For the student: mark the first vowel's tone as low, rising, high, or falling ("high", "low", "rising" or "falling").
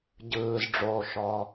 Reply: low